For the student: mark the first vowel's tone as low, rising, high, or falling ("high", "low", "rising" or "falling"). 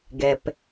low